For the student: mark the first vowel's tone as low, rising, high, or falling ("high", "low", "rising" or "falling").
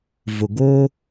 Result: low